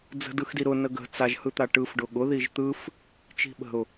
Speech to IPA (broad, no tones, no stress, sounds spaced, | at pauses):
d͡z ə̤ d ɯ x d i ɾ ʊ n ə ɡ ə̤ t͡s a ʒ h ɯ t̪ a ʈ ɯ f ɖ ʊ ɠ ʊ ð i ʒ t̪ ɯ f | t͡ʃ i̤ ɓ ə̤ ʊ̯